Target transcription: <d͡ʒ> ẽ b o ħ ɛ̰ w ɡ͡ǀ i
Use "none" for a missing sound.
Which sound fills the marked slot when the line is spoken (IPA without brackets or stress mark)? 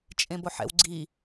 t͡ʃʼ